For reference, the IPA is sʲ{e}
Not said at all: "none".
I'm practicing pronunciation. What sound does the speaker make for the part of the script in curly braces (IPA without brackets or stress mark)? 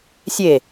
e